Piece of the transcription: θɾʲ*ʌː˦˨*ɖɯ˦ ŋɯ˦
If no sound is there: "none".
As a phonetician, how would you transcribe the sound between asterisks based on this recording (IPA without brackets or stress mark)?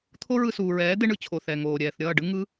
ʌː˦˨